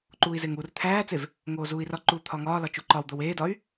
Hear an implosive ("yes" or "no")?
no